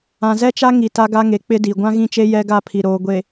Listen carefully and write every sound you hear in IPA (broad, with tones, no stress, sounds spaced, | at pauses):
ã˨ z ɛ˦ t͡ʃ a˦ ŋ i˨ t a˦ ɡ a˦ ŋ e˨ k͡p ɪ˦ d i˨ ɡʷ ã˦ ɣ ĩ˦˨ t͡ʃ e˦ j ɛ˦ ɡ a˦˨ pʰ i˨ ɾ oː˨ ɡʷ e˨